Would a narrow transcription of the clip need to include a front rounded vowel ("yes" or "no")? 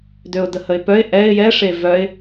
yes